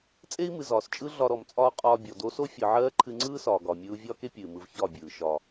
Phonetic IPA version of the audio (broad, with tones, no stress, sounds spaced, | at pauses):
t͡sʼ e˦ i̯ m ɨ˨ z ɒː˨ s t͡ʃʼ ɯ˦ ɮ ɒ˧ ɾ ɔ˨ m t͡sʼ ɒː˦ qʼ ɒː˧ bʲ ɔ˨ d o˧ s o˦ fʲ ɯ˨ ʕ ɜː˦ ǃʰ ɨ˧ ŋ͡ǀ ɯː˦ s ɒː˨ ɡ ɒː˨ mʲ ɯː˧ u̯ vʲ ɒː˦ k e˦ pʲ ɨː˨ m ɯ˧ v ç ɒ˦˨ bʲ ɯː˨ ʃ ɒ˨